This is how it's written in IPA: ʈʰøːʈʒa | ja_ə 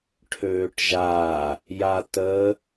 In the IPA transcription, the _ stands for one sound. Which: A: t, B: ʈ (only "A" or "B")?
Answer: A